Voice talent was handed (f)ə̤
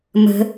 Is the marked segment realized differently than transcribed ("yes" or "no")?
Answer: yes